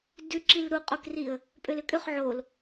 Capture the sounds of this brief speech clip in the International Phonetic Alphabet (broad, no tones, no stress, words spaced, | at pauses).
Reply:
dʉǁil ɾuqʼokriə̯ | pʼølʏkʼʏχ ʕol